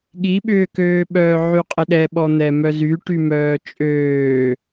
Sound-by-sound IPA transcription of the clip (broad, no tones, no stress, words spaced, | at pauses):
ɠiɓʏːkøːɓœː ʕyqʼɪɗɛ ɓɔn̪ɛmœzy ʈymœːt͡ʃʼøː